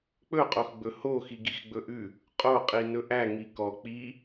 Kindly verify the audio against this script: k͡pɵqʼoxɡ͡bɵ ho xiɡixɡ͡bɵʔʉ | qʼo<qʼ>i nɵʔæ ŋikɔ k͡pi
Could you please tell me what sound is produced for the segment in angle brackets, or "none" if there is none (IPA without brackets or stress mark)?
qʼ